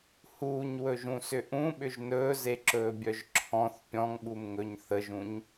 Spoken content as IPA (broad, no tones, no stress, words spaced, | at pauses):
huːɲwɵʒũsʏ ʔũɓʏʒ nɵːzeǁɵːbʲœʒ ǁʰɔ̃θ pʲɔ̃ŋɓumŋɵɲ θəʒũɲ